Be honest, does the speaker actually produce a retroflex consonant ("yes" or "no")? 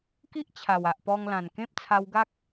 no